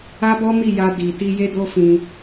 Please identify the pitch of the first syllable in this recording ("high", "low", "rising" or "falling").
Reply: high